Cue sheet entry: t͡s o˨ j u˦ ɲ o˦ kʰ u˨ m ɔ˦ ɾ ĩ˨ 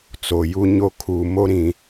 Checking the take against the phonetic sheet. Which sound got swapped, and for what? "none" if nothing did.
ɔ˦ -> o˦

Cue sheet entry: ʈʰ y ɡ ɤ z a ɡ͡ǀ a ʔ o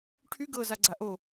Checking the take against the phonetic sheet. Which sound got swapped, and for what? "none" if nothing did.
none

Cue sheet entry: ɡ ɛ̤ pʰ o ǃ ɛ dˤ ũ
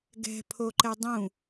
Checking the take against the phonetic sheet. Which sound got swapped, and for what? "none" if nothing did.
none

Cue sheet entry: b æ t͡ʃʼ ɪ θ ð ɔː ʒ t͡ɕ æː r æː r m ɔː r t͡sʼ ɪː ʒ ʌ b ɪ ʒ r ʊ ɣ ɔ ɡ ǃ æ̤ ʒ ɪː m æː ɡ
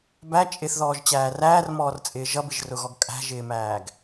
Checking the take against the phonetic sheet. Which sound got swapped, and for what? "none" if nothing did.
ǃ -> kʼ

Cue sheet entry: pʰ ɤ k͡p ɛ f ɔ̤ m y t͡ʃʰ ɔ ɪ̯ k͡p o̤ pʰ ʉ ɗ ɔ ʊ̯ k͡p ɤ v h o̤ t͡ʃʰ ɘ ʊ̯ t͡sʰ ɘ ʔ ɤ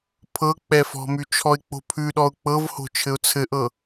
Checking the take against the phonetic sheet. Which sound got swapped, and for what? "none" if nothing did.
none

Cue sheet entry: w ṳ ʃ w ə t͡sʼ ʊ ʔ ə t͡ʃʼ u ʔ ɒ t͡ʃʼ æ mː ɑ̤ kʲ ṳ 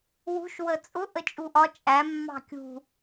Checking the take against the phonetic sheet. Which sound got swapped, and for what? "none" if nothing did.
none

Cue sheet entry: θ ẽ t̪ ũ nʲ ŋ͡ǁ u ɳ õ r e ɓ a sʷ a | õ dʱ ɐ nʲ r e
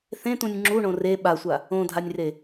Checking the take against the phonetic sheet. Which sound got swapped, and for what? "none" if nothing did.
ɐ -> a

